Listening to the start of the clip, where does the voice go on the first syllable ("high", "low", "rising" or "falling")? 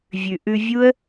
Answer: low